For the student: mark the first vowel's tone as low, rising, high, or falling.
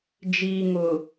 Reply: low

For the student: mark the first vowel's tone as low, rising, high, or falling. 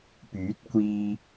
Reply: rising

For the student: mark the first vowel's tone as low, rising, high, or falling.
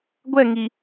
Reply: falling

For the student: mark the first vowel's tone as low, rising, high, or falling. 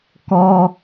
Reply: high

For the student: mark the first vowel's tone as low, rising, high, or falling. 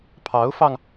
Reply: rising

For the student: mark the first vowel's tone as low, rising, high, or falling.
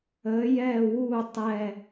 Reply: rising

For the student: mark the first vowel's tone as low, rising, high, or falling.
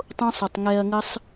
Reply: high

